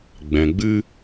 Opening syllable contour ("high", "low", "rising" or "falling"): low